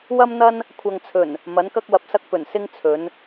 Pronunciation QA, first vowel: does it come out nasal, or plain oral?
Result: oral